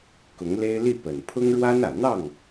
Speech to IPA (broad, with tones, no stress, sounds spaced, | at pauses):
k ʊ˧˥ ŋ l e˥ ɪ̯ l i˥˩ p ə˨˩ n pʰ ʊ˥ ŋ ɻ w a˥ n ä˨˩ n̪ ɑ˥˩ ŋ